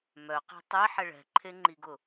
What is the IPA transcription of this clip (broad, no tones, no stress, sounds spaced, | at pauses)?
m œ q i̤ tˤ e ħ ɛ ɭ ɛ̤ ǃʰ e ŋ͡ǃ i ɡ ʊ